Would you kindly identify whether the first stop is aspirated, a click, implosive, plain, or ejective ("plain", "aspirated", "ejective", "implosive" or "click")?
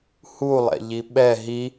implosive